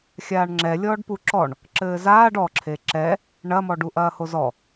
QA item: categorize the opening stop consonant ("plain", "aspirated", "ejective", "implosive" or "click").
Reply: click